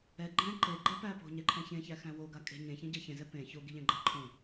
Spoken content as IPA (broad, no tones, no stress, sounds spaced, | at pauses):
ɛ ɡ͡ǃ ɛ̃ ǃ e ɡ͡ǃ ɛ p æ p o̤ ɲ ɛ ǃʰ ɛ̃ ç ẽ ç æ x æ̃ w o ɡ a kʼ e̤ ɲ ẽ ç ẽ ɟ ɛ ç ẽ z ɛ p ẽ ç o ɡ i ʎ ɛ̃ ɡ͡ǃ æ ǃʰ õ